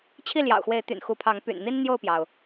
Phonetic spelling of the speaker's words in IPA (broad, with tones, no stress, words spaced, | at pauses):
t͡ɕʰi˥˨ljɑ̰˨˩ʊ̯xwe˨˦ɪ̯t̪y̰˨˩n xu˨˦pʰɑ˨˦ŋ py̰˨˩nn̪i˦n n̪jo˥˨ʊ̯pjɑ˩ʊ̯